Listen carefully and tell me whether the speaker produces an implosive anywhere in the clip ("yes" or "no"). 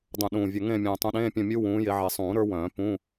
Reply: yes